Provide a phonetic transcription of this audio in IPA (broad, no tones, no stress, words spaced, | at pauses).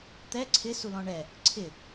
t̪ɛ ǀʰɪsu lɔ̃ɳɛ | ǀʰɪ